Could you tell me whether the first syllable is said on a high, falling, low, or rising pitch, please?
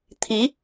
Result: rising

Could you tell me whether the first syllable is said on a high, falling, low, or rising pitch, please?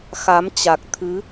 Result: rising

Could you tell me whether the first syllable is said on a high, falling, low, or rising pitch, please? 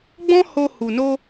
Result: high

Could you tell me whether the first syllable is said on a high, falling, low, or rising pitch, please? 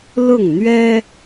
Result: falling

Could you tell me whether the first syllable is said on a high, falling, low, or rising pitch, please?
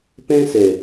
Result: high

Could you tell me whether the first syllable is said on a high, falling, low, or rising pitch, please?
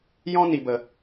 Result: high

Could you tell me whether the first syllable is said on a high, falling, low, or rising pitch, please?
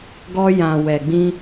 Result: high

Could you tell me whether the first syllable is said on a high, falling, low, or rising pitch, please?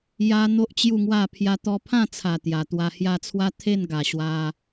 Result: high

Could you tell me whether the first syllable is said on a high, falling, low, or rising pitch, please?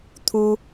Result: high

